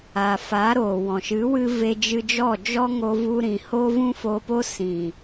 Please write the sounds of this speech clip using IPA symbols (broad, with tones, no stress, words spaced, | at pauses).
a˨fa˨˦ɾoː˨wɔ̃˨ ʃɨ˨˦wɨ˧ ve˧d͡ʒɨ˧d͡ʒɔ˦˨ d͡ʒɔ˦ŋo˧vu˧ ɾĩ˨ho˦vũ˦ foː˧po˦sĩ˨